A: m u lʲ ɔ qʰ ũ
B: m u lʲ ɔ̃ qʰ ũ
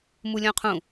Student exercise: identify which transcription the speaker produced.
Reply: B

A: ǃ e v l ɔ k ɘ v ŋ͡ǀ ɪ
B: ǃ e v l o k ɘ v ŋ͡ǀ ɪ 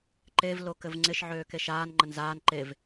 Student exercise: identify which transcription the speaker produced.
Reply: B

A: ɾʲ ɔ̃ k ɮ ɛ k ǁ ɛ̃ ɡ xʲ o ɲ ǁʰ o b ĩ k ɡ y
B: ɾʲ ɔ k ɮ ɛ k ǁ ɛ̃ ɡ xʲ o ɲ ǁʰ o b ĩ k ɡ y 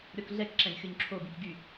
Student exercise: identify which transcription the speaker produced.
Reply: B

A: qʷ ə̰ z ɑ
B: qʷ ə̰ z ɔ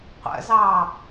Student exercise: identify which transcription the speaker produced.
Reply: A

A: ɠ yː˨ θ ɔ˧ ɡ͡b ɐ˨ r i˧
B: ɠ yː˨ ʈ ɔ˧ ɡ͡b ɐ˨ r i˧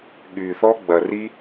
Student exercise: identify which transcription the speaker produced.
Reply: A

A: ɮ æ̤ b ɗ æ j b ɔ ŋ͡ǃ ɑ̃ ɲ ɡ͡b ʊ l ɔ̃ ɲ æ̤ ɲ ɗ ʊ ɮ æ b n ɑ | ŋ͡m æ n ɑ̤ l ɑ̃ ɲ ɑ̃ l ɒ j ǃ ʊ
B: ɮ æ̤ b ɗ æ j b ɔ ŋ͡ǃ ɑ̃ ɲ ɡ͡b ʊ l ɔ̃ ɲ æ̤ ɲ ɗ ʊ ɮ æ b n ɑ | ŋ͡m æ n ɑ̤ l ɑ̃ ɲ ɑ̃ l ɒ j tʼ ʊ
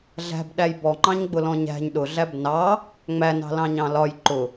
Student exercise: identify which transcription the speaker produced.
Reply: A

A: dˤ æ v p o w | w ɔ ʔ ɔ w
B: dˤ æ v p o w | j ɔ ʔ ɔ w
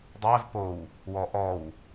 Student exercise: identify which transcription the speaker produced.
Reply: A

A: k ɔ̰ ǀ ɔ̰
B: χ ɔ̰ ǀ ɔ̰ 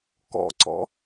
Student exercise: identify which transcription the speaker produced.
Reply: A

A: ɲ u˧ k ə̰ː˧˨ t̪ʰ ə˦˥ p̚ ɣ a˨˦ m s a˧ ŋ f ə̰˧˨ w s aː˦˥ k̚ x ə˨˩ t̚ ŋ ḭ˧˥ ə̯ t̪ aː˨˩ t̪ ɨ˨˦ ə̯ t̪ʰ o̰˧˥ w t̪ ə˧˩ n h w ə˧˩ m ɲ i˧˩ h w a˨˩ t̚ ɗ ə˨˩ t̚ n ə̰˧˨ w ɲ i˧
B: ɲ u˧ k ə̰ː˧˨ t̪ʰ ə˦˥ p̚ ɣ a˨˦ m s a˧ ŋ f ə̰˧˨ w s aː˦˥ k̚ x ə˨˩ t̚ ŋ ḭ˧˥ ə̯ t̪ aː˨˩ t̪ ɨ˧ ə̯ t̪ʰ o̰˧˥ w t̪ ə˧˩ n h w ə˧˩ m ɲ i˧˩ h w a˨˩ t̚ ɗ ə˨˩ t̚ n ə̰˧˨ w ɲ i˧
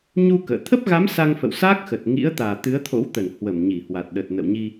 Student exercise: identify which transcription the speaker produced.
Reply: A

